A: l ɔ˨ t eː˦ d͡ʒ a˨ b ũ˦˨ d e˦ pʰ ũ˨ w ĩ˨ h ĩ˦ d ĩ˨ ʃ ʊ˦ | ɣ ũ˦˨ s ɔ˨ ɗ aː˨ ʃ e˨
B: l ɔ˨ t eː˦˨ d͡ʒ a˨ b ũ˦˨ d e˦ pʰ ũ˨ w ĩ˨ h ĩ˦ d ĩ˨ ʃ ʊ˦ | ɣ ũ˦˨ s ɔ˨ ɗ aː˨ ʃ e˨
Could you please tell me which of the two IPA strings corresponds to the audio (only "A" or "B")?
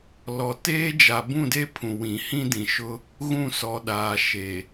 A